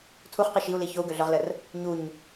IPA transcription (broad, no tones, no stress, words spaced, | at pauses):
tʰuχqi ʃiu̯li çou̯ɡøɮœʁlər | ɲuɲ